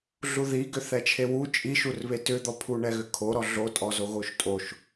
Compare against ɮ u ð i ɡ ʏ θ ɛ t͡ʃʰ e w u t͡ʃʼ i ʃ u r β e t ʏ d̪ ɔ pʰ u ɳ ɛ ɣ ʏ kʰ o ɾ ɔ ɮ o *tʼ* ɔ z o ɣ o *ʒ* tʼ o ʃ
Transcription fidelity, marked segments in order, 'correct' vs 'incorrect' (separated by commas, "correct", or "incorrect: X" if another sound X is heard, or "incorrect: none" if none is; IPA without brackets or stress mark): correct, incorrect: ʃ